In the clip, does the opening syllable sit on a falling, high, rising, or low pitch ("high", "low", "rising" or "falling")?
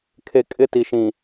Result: low